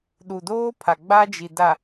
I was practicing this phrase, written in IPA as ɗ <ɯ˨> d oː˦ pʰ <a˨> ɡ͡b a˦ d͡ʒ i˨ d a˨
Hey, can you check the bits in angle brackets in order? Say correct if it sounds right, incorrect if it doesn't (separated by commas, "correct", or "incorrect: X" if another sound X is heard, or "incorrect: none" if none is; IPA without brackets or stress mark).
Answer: incorrect: u˨, correct